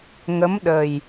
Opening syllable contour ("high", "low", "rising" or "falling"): rising